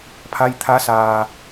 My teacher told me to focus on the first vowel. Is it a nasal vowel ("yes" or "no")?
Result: no